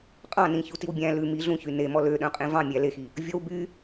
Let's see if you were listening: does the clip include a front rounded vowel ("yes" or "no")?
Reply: yes